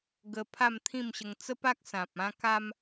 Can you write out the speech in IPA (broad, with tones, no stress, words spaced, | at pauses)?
ɡə˧ pʰa˥˧mt̪ʰĩ˥˧mɕə˧ŋ t͡sə˦pa˦k̚ sã˨p̚ ã˧ka˧m